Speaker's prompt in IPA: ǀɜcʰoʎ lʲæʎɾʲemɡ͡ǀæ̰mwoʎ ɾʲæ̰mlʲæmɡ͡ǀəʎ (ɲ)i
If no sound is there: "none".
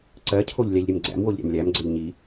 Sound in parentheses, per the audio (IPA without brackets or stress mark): ɲ